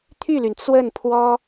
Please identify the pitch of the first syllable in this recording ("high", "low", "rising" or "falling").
falling